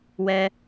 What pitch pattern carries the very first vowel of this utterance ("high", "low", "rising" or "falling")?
low